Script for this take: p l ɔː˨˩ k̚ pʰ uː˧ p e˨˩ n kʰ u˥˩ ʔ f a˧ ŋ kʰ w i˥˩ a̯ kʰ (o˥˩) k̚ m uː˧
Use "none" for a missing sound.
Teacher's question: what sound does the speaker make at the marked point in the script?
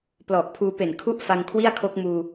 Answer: o˦˥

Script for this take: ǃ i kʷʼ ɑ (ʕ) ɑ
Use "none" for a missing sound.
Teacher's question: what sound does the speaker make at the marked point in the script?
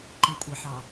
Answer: ħ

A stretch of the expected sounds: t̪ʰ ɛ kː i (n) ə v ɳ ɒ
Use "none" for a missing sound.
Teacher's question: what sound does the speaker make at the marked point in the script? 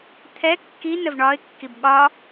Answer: n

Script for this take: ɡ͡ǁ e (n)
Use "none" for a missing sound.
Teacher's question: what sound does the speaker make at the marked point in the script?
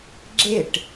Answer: ʈ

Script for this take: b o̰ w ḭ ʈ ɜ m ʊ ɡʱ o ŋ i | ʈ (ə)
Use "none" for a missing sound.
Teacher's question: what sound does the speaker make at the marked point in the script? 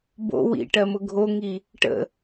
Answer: ə̰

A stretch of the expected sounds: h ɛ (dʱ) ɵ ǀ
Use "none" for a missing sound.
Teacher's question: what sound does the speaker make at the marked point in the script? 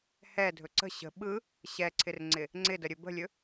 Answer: dʱ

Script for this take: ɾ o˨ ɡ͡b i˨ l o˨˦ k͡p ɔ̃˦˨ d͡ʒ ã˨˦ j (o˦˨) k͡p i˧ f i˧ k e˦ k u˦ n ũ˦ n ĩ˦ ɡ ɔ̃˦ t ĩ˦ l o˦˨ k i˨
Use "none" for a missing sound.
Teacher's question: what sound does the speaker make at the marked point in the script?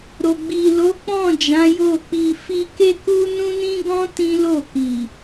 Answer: o˦˨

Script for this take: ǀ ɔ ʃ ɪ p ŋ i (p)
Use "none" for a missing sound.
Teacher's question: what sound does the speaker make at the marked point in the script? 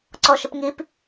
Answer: p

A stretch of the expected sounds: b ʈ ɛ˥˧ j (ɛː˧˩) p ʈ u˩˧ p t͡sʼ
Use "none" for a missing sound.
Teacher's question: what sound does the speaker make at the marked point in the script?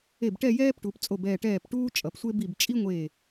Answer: ɛː˥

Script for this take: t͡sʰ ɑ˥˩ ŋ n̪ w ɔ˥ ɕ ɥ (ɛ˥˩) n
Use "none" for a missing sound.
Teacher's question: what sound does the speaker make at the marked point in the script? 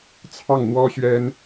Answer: ɛ˥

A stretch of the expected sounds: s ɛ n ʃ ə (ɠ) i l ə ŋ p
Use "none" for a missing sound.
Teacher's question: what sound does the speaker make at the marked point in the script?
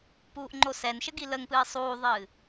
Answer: ɡ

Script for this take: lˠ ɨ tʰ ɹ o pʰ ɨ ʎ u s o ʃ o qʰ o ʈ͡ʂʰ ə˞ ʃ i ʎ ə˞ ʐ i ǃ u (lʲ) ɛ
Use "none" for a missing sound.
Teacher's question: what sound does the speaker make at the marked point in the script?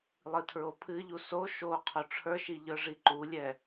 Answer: lʲ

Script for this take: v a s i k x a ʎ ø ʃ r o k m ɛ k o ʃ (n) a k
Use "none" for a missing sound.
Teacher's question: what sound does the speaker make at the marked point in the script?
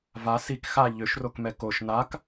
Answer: n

